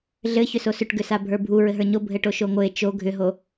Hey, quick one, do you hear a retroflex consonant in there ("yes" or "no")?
yes